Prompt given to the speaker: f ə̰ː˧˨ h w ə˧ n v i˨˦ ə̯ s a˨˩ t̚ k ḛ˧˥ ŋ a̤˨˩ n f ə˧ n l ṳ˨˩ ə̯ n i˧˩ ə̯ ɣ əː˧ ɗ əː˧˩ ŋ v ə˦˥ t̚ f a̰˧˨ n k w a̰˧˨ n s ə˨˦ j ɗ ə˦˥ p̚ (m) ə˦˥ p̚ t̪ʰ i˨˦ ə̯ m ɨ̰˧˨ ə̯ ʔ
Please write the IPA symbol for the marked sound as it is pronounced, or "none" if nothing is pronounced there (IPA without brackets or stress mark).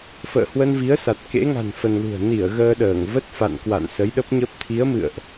ɲ